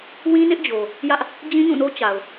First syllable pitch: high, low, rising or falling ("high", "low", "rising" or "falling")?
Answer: high